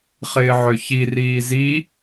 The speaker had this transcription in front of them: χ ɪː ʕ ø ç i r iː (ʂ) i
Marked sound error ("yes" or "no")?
yes